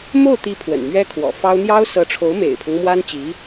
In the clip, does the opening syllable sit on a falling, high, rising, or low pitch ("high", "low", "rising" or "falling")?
falling